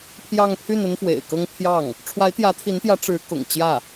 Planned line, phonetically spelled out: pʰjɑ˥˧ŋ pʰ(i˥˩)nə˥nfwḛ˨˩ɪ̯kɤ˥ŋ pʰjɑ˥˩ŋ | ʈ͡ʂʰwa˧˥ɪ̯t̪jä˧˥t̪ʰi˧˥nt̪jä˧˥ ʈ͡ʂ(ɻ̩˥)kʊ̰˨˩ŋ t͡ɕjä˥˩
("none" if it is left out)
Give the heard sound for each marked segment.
y˥˩, ɻ̩˧˥

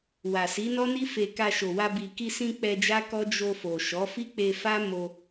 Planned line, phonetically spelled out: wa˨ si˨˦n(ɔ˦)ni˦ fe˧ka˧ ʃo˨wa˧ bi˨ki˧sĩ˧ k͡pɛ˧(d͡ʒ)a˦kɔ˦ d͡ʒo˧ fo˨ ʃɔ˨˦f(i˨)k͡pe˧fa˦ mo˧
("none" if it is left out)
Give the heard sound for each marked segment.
ɔ˦, d͡ʒ, i˦

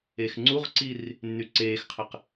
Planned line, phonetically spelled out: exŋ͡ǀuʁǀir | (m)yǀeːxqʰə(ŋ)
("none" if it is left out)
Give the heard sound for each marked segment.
nː, q

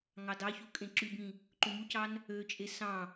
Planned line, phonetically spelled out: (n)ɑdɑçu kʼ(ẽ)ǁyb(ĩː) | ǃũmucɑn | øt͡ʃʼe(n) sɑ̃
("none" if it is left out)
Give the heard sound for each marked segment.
ŋ, ẽ, ĩ, none

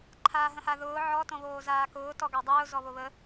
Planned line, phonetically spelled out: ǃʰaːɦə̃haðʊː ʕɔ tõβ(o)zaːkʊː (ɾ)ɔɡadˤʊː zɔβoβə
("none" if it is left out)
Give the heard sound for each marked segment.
oː, t

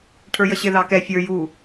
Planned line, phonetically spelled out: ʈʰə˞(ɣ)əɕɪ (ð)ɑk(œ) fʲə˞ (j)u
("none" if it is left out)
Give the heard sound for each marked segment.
j, ð, ɛ, j

